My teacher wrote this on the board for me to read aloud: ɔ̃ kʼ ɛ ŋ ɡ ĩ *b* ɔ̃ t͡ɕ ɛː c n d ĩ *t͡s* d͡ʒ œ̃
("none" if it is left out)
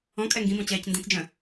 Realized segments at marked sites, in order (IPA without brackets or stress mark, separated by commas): b, t͡s